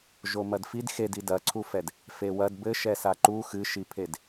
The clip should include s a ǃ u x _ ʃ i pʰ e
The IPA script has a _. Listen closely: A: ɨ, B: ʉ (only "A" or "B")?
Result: A